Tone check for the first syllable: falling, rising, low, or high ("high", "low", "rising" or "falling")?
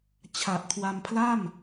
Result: low